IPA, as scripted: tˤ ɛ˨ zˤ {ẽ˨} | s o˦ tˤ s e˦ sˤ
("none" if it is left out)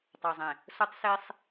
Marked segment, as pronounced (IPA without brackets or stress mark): ẽ˨